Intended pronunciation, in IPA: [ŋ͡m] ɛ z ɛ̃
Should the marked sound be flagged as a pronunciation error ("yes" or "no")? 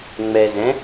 no